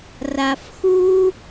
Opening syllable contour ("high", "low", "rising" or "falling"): low